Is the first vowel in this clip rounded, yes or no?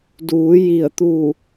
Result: yes